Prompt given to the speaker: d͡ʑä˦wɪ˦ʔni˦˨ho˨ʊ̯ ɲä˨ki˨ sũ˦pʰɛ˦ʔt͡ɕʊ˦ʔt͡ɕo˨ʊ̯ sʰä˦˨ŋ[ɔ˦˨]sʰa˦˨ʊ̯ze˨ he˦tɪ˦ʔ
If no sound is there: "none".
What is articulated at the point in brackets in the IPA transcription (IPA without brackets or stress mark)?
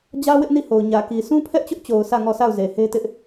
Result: ɔ˦˨